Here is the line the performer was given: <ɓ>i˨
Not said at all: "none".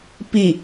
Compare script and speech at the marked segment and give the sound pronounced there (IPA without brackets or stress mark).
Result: p